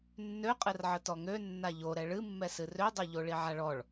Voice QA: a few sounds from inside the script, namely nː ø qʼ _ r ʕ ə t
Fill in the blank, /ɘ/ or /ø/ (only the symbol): ɘ